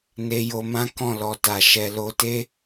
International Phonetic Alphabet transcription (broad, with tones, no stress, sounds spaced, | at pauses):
n e˧ j o˧ m ã˦ k ɔ̃˦˨ l ɔ˨ t a˨ ʃ ɛ˨ l o˧ t e˦